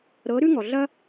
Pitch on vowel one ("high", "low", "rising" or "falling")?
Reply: rising